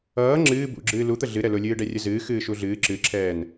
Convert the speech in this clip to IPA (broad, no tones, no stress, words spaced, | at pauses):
ʌː ŋ͡ǁɨː bṵɡ͡ǁɨː lut̪ə ɮɨ ɾɛlʊ lʲɨːɖɛrʲəzɨː xɨːʃuɮɨː ǁɨǁʰɛːn